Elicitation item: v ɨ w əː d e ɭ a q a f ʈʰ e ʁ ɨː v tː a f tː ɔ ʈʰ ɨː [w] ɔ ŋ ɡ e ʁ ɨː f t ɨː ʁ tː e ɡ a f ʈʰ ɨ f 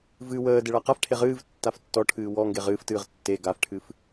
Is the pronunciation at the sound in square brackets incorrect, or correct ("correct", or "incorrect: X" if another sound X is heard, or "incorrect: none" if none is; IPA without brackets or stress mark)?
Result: correct